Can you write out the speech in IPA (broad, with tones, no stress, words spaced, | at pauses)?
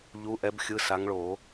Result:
ʎu˨˦ʔɛ˨˦b xʲɯ˨˦sa˨˦ŋɭo˧˩˧